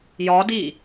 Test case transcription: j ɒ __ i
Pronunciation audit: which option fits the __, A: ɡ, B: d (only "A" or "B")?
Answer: B